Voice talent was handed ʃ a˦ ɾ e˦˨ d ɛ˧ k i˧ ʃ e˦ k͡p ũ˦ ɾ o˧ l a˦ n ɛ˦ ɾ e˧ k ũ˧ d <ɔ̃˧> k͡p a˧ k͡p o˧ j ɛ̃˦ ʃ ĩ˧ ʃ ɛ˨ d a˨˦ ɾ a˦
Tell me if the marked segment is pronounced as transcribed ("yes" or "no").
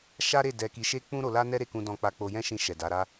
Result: yes